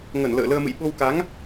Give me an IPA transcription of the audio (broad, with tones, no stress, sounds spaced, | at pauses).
ŋ ə˧˩ n l ə̰ː˧˨ l əː˧ m ɨ̰˧˨ j ɓ o˧ w k a˨˦ ŋ